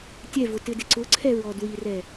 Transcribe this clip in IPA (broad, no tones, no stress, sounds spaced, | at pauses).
tʲ ɛ v ʊ t ɪ d ɪ ǀ ʊ ǀʰ ɛ ɹ ɔ d w i r ɛ